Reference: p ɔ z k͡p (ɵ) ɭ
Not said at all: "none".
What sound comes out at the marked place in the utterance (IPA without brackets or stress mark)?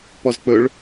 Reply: ɵ